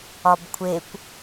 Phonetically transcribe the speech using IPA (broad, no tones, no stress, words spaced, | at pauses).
ɒbkʷʰekʷ